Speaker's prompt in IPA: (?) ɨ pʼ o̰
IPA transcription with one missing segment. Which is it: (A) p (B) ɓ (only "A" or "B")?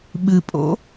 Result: B